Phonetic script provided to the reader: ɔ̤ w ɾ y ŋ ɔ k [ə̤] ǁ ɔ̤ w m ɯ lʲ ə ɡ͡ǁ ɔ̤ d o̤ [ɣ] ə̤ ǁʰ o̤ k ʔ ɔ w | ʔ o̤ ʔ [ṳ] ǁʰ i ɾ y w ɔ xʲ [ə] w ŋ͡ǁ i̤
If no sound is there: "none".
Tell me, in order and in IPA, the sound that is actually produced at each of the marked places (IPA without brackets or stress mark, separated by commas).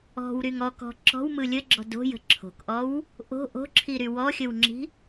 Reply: ɔ̤, j, o̤, ə